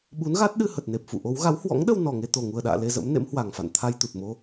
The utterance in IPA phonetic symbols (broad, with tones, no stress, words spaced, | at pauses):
ɓu˨˦nɣa˦˥t̚ɗɨ˧ hə˨˩t̚ne˨˩p̚fṵ˧˨ ʔo˨˦w ɣa˨˦whwɔ̰˧˥ŋɗə˧w nɔ˨˩ŋe˧t̪o˨˩ ŋu˨˩ə̯ɗa̰ː˧˨ le˧zə̰˧˥mnḛ˧˥m hwa˨˩ŋfa̰˧˨n t̪ʰa˧jt̪u˨˩t̚mo˧